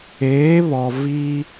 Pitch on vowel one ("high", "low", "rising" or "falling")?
rising